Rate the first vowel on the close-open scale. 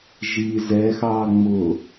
close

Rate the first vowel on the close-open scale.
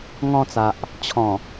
mid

